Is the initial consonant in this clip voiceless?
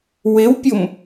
no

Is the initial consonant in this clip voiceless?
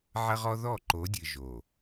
no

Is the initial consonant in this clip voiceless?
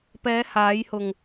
yes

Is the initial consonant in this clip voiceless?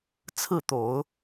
yes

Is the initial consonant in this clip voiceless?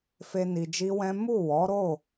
yes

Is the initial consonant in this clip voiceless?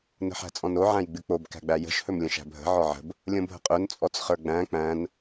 no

